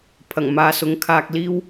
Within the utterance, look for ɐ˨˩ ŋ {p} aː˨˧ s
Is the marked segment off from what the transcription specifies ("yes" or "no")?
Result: yes